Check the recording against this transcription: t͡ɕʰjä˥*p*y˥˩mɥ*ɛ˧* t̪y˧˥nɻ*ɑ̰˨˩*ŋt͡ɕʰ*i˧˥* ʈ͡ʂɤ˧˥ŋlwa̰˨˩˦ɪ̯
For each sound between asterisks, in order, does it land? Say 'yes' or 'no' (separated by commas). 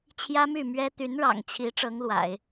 no, no, yes, yes